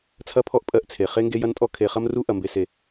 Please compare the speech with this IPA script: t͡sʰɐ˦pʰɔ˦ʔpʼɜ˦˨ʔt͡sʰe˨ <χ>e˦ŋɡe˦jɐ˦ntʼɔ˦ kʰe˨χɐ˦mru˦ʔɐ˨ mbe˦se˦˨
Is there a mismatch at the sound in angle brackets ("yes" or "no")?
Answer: no